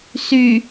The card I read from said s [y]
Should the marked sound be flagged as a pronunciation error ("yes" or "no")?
no